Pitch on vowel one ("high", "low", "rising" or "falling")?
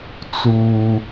low